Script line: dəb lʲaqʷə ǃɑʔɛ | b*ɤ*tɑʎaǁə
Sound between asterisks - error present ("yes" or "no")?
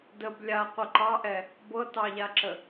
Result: no